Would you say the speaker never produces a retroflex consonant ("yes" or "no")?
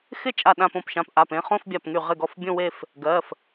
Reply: yes